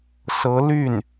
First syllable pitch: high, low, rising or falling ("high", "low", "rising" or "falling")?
rising